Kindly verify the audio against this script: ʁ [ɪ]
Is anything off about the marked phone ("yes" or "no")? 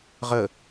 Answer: yes